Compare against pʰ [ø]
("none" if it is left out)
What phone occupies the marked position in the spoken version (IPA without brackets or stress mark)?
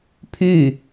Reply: y